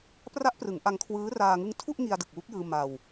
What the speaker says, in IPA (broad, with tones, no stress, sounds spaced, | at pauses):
p r a˦˥ ʔ p r ɯ˩˦ ŋ ʔ a˧ ŋ kʰ w ɯː˦˥ r aː˧ ŋ ɯ˦˥ ŋ tʰ u˥˩ ʔ ŋ i˧ a̯ d ɯ˨˩ k̚ w u˦˥ k̚ j ɯː˧ m a˧ w